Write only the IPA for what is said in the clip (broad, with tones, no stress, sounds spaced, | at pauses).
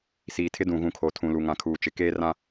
s iː˨ tʰ ɪ˦ d ũ˨ ɣ ũ˨ kʰ o˨ tʰ ũ˨ l u˨ ŋ ã˨ kʰ uː˨ t͡ʃ ɪ˨ k eː˦ r ã˦